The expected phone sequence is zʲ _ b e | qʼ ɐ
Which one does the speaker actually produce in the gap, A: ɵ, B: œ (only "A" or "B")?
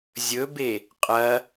A